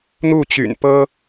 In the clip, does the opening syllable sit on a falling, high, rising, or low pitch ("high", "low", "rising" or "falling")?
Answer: falling